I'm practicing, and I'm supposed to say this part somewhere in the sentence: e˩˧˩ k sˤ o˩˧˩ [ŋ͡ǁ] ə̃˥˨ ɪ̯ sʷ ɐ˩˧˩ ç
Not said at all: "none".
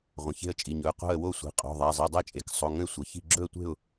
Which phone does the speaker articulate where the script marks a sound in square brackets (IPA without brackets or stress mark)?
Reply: ŋ